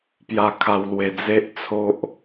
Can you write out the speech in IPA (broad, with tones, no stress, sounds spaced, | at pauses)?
p j a˧ kʰ a˧ w l w e˧ d͡z e˦ ʔ t͡sʰ o˦ ʔ